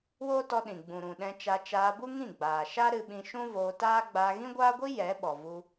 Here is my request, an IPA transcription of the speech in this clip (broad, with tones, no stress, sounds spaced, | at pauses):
w oː˦ t ɔ˧ ɗ ĩ˨ ɡ͡b ũ˨ ɾ ũ˨ ɗ ɛ̃˧ t͡ʃ a˧ t͡ʃ aː˧ b u˦ ŋ ĩ˦˨ ɡ͡b aː˨ ʃ a˦ ɾ ɨ˧ ɓ ĩ˧ ʃ ũ˦ v oː˧ t aː˦ ɡ͡b aː˧ ɣ ĩ˦ ɡʷ aː˦ ɡʷ i˦ j ɛ˨˦ ɓ ɔ˨ v u˧